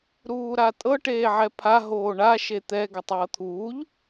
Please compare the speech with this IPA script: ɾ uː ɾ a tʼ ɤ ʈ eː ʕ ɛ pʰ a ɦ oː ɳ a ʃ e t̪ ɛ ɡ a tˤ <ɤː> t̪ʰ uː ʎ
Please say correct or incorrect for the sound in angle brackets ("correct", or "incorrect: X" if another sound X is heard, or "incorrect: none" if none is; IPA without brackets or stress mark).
correct